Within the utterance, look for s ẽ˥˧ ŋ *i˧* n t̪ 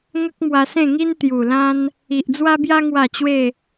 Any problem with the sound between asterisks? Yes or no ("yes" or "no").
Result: yes